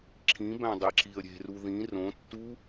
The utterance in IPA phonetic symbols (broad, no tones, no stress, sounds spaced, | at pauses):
ǁʰ ĩ b æ̃ dˤ e ǁ i ə̯ ɾʲ e̤ r u ð ĩ r õ tː u